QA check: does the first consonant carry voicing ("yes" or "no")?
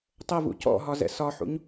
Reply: no